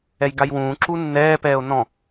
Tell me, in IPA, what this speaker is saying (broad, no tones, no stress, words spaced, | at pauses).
ɛjɡajwũː ǁunːɛːpɛːo̯ nɔ̃